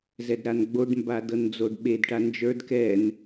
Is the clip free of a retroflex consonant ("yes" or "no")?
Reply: no